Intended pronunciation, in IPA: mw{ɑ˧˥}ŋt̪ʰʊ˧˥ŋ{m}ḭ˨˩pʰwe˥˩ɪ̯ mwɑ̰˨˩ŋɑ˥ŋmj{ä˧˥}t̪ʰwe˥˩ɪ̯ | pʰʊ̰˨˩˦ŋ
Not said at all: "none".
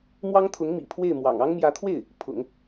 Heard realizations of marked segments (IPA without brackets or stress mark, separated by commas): ɑ˥, m, ä˧˥